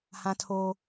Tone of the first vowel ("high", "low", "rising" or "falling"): high